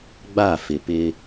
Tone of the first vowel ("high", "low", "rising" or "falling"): falling